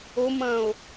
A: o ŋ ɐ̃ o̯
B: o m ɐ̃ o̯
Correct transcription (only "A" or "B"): B